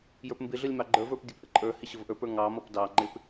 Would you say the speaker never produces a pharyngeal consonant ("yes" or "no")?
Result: yes